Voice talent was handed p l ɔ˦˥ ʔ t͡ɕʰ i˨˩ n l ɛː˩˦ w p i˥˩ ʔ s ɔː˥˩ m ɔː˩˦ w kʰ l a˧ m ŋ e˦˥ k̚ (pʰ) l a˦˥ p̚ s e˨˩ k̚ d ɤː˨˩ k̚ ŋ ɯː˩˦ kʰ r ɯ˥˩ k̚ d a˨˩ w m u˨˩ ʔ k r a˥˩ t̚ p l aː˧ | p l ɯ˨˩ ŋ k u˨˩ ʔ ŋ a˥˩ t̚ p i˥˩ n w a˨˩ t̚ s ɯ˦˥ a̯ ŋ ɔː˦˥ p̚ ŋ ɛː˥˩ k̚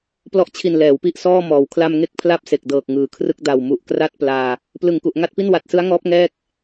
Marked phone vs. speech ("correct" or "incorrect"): correct